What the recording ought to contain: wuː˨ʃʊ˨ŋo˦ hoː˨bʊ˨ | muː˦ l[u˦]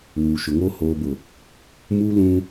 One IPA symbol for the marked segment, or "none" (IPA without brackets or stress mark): ũ˦